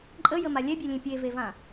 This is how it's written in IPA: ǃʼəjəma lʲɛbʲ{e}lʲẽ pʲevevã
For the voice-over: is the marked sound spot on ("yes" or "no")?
yes